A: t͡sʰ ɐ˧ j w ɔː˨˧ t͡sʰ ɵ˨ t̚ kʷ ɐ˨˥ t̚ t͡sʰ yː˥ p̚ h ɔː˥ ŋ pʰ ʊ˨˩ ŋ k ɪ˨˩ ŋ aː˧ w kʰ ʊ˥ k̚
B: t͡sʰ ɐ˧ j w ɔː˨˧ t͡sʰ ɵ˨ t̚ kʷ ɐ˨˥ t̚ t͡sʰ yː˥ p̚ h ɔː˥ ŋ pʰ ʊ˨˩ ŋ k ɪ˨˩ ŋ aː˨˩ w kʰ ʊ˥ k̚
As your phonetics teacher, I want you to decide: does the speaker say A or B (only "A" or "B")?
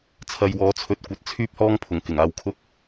A